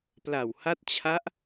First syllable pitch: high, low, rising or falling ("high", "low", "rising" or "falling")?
low